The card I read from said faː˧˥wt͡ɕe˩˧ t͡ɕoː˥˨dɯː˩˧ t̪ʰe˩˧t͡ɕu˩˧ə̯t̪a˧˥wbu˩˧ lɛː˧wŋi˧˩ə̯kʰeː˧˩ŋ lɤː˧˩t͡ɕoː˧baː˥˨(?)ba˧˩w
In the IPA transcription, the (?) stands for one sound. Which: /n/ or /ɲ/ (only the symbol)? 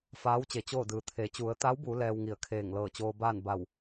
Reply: n